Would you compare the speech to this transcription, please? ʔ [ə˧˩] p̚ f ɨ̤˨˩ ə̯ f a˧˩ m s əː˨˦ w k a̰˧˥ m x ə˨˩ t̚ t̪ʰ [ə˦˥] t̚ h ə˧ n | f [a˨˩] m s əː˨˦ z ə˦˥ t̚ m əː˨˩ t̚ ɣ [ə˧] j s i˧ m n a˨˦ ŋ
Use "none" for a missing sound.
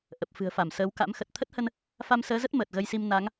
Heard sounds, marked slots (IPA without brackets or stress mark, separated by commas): ə˨˩, ə˦˥, a˧, ə˧